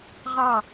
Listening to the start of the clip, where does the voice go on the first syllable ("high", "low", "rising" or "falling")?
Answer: falling